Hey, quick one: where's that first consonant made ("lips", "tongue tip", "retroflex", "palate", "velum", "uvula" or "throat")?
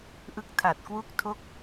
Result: throat